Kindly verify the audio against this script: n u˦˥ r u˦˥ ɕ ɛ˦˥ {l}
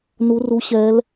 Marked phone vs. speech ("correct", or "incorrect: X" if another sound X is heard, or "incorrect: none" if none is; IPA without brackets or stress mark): correct